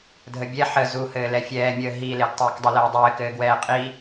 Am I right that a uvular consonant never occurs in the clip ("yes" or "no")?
no